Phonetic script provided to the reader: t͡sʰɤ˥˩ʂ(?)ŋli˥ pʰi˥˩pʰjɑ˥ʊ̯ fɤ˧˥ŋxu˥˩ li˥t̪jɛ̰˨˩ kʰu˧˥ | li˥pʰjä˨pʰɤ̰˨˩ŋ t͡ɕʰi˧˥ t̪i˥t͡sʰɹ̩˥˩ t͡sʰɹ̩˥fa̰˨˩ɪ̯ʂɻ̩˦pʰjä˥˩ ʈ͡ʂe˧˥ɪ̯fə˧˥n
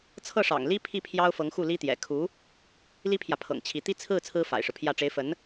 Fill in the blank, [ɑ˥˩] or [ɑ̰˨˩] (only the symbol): ɑ̰˨˩